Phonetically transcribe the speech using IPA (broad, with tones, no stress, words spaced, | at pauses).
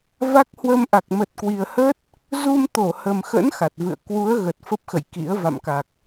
va˦˥k̚hwə˧mʔa˨˩k̚ mə˨˩t̚ kwi˨˩ə̯hə˦˥t̚ | zu˧mt̪o˧˩hə˨˩mxə̰˧˥n xa˨˩t̚vɨ̰˧˨ə̯ kwu˨˦ə̯ ɣə˨˩t̚fə˦˥p̚xə̰˧˨j kḭ˧˥ə̯ va̰˧˨mka˨˩k̚